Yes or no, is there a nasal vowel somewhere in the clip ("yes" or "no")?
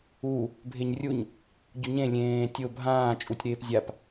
yes